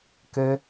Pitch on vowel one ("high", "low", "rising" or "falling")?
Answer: high